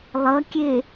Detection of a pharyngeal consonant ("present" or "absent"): absent